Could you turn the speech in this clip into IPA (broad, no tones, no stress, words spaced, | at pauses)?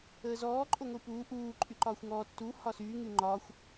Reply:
əːzɔː ǃʼoŋʷipuː ʔuː ǃʼyǃɒːxʷŋɔː tːu hɒsy ŋyŋ͡ǃɒːxʷ